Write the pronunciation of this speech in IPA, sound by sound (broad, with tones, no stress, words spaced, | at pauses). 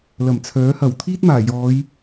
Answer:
lɐ˨˩mt͡sʰœː˨˥hɐ˨˩w t̪ʰiː˥t̚maː˨˩jɔː˨˧j